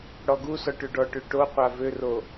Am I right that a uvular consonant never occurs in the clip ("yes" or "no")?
no